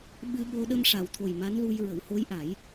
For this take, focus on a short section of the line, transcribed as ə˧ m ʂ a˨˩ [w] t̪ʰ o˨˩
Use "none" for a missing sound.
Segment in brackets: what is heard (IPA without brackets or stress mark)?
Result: w